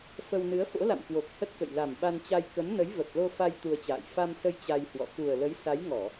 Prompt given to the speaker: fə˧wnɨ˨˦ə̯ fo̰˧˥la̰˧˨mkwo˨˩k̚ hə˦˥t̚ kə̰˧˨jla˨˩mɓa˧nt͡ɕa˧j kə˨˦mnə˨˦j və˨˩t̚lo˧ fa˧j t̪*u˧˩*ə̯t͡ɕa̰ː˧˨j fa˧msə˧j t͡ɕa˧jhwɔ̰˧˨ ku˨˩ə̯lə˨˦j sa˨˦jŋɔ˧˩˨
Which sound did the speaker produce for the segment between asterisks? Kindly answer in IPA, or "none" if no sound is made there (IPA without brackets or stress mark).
u˧